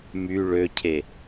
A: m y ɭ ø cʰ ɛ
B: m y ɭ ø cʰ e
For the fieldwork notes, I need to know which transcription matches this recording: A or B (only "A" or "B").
B